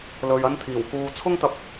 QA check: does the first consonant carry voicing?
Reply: yes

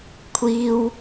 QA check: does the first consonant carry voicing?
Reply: no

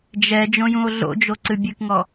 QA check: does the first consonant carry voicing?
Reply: yes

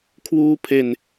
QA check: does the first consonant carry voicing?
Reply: no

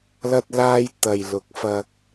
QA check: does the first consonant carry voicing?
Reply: yes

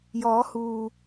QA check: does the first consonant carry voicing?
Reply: yes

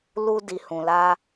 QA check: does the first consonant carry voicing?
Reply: yes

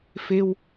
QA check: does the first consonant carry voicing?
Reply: no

